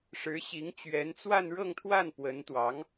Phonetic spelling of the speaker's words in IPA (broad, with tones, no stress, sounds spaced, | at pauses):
ʂ ɻ̩˧˥ ɕ i˧˥ ŋ t͡ɕ ɥ ɛ˧˥ n t͡s w a˥˧ n ɻ ɤ˥˧ ŋ t̪ʰ w a˥˩ n p w ə˧˥ n t̪ w ɑ˧˥ ŋ